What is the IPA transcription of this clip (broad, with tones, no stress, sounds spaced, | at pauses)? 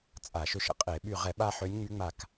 t͡sʼ a˧˩˧ ʃ ø˧ ʃ ə̰˧˩˧ qʼ e˧˩˧ ɓ y˧˩ ʁ ɛ˧˩˧ ɓ a˧ ħ ø˨˥ nʲ ŋ͡m y˨˥ ŋ͡m a˧˩ k